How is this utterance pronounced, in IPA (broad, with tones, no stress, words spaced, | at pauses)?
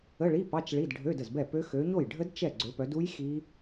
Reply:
ə˧˥˧ɭi˧˥˧ pɑ˧˥˧t͡ʃ ɭi˧˥˧dɖʱø˧˥˧də˥˩zbɛ˥˩ pø˦˥ xø˨˦ɲo˥˩j ɖʱə˦˥d t͡ʃɛ˥˩ ɡ͡ǀø˨˦pœ˨˦du˦˥j xi˦˥